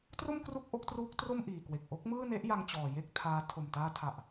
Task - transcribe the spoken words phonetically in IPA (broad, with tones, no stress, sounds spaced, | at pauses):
t r o˥˩ m k r u˥˩ k̚ ʔ o˦˥ k̚ t r uː˦˥ k̚ t r o˥˩ m ʔ iː˨˩ k w e˨˩ k̚ ʔ o˦˥ k̚ m ɯː˥˩ n e˦˥ ʔ j a˧ ŋ t͡ɕ ɔː˨˩ j e˥˩ k̚ tʰ aː˦˥ tʰ o˨˩ m t aː˧ tʰ a˨˩ ʔ